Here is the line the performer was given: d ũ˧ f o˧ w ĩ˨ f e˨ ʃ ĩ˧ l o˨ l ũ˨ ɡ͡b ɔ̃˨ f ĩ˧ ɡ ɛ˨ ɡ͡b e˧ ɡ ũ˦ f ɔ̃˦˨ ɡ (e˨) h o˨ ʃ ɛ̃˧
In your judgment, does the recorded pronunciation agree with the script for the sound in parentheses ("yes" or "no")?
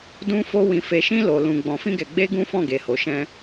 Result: yes